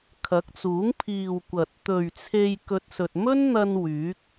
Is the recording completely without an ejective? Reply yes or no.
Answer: yes